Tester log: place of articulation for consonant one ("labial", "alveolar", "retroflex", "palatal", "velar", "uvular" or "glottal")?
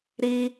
alveolar